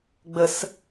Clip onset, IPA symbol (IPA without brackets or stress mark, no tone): ɡ͡b